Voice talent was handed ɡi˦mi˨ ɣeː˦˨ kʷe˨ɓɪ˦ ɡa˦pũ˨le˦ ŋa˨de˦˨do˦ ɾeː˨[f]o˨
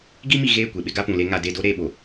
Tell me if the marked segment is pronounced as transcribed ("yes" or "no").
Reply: no